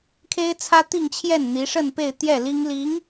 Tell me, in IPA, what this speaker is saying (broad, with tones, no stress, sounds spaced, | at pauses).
kʰ e˥ ɪ̯ t͡sʰ ä˥ t̪ i˥˧ ŋ t͡ɕʰ j ɛ˥˩ n n̪ i˧˥ ʂ ə˥˧ n p e˥˧ ɪ̯ t̪ j ɛ˥˩ l i˥ ŋ l i˧˥ ŋ